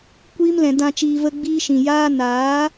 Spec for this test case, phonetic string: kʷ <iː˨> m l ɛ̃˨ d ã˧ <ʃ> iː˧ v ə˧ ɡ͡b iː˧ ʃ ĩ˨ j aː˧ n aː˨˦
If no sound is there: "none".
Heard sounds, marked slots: iː˧, t͡ʃ

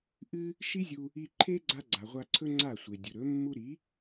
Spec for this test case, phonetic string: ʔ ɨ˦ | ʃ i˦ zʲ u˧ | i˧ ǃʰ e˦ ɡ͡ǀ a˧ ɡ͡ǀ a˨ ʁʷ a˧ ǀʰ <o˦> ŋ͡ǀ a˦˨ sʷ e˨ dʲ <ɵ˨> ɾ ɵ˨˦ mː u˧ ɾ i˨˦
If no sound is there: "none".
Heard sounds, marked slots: ɵ˦, ɵ˨

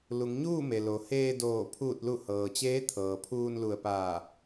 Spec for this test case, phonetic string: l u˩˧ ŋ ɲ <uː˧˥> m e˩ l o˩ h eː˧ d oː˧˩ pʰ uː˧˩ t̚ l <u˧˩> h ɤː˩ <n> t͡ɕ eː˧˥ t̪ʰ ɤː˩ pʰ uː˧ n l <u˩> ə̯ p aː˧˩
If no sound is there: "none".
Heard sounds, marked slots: uː˥˨, u˧˩, none, u˧˩

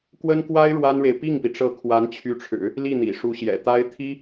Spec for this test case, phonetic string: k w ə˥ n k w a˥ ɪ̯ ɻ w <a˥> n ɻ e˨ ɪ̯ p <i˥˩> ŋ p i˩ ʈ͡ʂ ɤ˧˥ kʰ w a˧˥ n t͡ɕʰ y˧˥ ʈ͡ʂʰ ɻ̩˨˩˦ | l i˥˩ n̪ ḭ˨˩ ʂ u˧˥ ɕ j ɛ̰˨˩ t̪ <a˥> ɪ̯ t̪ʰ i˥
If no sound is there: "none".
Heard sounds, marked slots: a˥, i˥˩, a˥

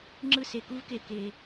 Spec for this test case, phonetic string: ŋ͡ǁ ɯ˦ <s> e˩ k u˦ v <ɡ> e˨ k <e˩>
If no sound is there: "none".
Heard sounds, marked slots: s, k, e˩

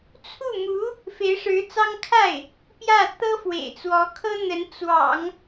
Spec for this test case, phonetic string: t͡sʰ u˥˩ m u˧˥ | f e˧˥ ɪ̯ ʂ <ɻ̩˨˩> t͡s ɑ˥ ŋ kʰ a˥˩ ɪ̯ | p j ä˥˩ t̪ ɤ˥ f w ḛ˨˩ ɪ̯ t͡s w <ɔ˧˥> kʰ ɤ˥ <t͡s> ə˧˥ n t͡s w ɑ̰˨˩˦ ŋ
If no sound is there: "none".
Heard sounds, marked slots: ɻ̩˧˥, ɔ˧˥, n̪

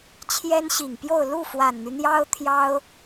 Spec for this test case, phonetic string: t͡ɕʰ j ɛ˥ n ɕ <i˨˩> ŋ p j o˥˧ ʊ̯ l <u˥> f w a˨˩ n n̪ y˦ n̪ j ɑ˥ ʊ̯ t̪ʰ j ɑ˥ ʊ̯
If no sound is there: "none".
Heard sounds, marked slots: i˨˩, u˥˩

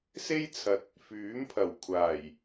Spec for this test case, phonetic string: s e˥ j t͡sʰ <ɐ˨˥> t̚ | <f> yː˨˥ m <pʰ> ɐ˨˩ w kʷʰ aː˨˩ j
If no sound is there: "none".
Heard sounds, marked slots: ɐ˨˥, f, pʰ

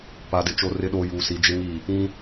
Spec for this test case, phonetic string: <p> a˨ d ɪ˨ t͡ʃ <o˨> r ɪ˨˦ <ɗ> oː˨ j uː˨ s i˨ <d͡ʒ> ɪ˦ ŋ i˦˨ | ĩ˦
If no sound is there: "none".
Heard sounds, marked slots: p, o˨, ɗ, d͡ʒ

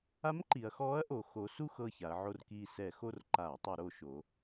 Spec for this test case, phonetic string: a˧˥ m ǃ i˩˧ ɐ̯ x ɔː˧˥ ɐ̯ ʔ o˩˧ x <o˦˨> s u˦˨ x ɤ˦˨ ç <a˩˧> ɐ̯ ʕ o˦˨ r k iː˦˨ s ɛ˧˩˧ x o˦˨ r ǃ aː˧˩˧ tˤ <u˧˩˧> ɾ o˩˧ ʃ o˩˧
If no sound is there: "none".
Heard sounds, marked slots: o˩˧, a˩˧, u˧˩˧

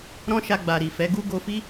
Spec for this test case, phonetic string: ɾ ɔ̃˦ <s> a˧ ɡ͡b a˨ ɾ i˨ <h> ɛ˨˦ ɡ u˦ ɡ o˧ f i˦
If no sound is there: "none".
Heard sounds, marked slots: ʃ, f

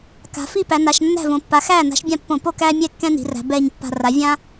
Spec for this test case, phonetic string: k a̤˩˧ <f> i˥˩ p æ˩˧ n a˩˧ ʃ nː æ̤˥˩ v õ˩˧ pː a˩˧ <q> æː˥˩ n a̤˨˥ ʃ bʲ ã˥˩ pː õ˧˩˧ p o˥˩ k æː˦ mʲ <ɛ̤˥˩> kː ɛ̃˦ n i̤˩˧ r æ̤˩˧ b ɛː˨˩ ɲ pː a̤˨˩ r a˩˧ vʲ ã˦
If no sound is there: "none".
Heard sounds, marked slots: f, x, ɛ˥˩

